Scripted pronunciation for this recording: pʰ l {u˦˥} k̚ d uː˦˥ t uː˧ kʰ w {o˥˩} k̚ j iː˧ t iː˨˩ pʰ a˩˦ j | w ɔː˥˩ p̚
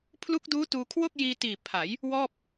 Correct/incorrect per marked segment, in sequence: correct, correct

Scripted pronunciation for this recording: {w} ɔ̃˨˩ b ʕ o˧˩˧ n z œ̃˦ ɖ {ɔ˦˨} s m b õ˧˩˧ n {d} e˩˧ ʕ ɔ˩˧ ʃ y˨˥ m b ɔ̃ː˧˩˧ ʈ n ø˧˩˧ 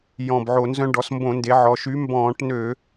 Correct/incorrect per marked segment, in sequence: incorrect, incorrect, correct

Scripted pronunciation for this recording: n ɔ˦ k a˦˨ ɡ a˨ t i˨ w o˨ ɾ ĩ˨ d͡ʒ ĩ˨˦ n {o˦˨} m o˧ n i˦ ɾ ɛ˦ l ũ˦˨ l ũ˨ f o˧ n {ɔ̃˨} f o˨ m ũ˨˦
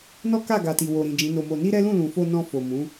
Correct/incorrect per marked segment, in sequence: incorrect, incorrect

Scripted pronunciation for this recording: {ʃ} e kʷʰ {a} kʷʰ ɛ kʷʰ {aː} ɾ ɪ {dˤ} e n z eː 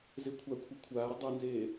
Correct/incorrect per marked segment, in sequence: incorrect, correct, correct, correct

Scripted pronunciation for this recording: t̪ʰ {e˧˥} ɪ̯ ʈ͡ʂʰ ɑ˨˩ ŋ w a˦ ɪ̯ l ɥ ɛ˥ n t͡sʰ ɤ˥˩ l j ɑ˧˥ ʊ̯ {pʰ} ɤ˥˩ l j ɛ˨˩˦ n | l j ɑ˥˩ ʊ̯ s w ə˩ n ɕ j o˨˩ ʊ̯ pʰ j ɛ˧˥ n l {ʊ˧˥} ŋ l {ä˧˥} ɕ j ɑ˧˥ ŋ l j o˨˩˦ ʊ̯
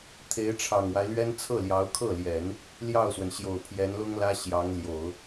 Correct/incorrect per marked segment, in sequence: correct, incorrect, incorrect, incorrect

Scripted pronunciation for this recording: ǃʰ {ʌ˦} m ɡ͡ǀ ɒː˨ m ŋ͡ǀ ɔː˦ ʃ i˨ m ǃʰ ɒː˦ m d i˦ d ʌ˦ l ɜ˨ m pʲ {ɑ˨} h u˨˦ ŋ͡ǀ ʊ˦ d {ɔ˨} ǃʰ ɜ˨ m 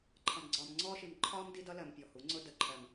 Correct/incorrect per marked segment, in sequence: incorrect, incorrect, incorrect

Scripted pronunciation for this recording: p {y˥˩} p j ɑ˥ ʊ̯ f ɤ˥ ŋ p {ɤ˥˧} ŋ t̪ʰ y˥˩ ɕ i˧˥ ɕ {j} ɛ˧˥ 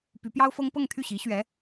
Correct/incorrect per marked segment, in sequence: incorrect, correct, incorrect

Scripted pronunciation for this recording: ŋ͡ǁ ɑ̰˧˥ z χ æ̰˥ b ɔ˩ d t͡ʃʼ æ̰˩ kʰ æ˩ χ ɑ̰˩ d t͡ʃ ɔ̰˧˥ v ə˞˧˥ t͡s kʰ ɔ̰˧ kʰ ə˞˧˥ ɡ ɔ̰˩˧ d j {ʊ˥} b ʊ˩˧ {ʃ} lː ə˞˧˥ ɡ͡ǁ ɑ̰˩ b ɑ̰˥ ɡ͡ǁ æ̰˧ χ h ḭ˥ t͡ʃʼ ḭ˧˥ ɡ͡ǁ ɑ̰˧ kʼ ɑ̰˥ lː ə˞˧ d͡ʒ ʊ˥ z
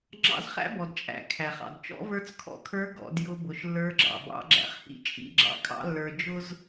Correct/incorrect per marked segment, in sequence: incorrect, correct

